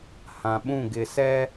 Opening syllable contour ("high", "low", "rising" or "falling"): low